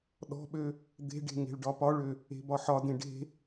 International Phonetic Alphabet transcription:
ɗɔ̤ɓø | d̪e̤ɖe̤ ŋe̤ɭɖɒpɒɭø | e̤bɒħɒdẽ ɖe̤

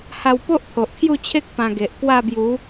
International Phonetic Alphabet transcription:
ha˧wpo˦ʔ t̪ʰo˨ʔkʰju˥˧t͡ɕʰe˦k̚ pã˧ɡe˨ʔ kwa˥˧bju˨˦

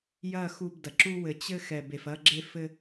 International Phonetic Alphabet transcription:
jɐ˦˨xu˧bdɐ˨ ǁu˧ wɘ˨ t͡ɕɘ˧ xɛ˨be˨fɐ˧ɡ͡ǁe˧ fɘ˧

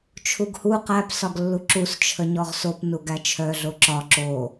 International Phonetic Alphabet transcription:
t͡ʃʰuɡhu qæp sɒɡlːuǁus t͡ʃʰəɲɔʁsop nuɡæt͡ʃʰœ ɮoǁɒ ǁo

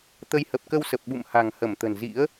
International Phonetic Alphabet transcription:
t̪ə˨˦jhə˨˩p̚kə˧wsə˨˩p̚ ɓṵ˧˨m ha̤˨˩ŋhə˧˩mt̪ə̤˨˩n zḭ˧˥ə̯

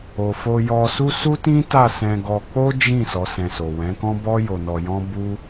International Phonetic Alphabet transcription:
o˨fo˧jɔ˧su˦ su˦tĩ˦ta˦˨sɛ̃˧ ɡɔ˧ k͡po˦d͡ʒĩ˦˨ sɔ˨˦sɛ̃˧so˨ wɛ̃˨˦kɔ̃˦ bɔ˦jo˧nɔ˧ jɔ̃˦ bu˦

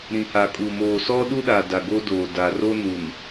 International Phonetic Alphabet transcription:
ɾĩ˨ha˨kʼu˨moː˨ sɔ˦ɗu˦ɗa˨da˨ ɡo˦doː˨daː˨ ro˦nu˨n

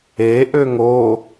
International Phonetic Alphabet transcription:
eʔøŋ o

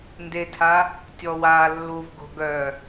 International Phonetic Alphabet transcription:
ndetʰa | tʲɔwa lːuvɡo̤ ɡœ

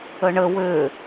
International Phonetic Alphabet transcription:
əɳə wø

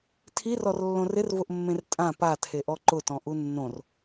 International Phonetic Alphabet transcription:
tʰirɔrlːõ rɪrvʊʔmːẽr tʼã patʰeʔɔ ǃʊtɔ̃ʔu nːõr

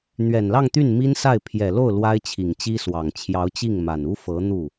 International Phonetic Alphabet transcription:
n̪ɥɛ˨˩nlɑ˥˧ŋt̪y˥˩n mi˥nsa˥˩ɪ̯ pʰjɛ˨˩lo˥˩ʊ̯ lwa˥ɪ̯t͡ɕʰi˨˩ŋt͡ɕi˥swɑ˨˩ŋ t͡ɕʰjɑ˧˥ʊ̯t͡ɕi˥˩ŋma˨˩nu˥ fɤ˧˥ n̪u˥˩

